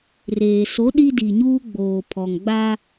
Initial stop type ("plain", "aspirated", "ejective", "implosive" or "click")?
implosive